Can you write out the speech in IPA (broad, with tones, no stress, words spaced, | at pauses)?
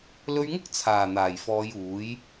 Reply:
lɵ˧ɥŋʊ˥k̚ t͡sʰaː˨˩ n̪aː˨˩jfɔː˨˧juː˨˥j